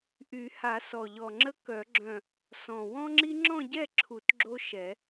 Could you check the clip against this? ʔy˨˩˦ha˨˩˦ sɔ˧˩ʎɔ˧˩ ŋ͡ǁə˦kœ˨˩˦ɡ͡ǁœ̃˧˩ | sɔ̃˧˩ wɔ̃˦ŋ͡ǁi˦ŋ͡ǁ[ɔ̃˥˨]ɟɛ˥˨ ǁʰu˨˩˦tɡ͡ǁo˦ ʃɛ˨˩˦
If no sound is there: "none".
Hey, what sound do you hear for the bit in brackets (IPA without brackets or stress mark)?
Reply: ɔ̃˥˨